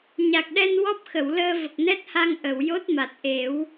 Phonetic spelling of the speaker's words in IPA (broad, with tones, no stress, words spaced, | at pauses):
ɲa˨˩k̚ɗɛ˧n wɔ˦˥p̚xə˨˩˨wləː˧ və˨˩k̚nɛ˦˥t̚ha˧ŋ ʔə˨˩˨wjo˦˥t̚ma˨˩t̚ʔe˨˩˦w